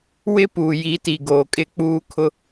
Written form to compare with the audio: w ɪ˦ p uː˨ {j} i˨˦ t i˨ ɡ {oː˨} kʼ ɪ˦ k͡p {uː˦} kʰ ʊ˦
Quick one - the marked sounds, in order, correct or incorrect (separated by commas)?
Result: correct, correct, correct